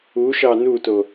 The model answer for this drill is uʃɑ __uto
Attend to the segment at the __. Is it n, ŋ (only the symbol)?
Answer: n